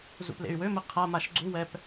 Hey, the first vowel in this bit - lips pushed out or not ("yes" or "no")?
yes